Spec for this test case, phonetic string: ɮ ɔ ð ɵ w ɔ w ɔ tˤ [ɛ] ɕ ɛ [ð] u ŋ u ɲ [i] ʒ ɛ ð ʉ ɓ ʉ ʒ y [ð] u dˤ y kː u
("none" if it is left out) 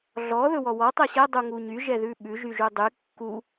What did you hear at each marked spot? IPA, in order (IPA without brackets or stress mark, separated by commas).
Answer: ɛ, dˤ, y, ʒ